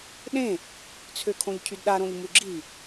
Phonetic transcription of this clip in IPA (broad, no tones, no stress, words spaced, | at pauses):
ɗẽ | t͡sʰøkʰõʎcʰydɗa ɾõʎmuɡ͡ǁi